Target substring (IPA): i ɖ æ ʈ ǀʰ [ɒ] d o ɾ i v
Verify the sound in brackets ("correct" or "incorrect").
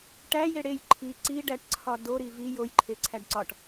correct